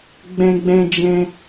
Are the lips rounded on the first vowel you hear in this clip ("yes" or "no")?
no